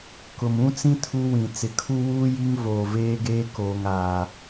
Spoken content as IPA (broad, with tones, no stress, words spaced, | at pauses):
kʊ˨mũ˦t͡sĩ˦ tʰu˦wĩ˨ t͡sɪ˨kʰu˦wuː˦ ji˦ŋ voː˨veː˦ ɡeː˦koː˨ŋaː˨